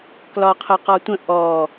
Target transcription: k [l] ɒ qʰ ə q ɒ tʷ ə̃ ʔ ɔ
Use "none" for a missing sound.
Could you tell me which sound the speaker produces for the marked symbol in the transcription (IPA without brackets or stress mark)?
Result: l